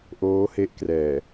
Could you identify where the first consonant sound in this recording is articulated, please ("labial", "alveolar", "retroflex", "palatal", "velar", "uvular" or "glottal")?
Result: glottal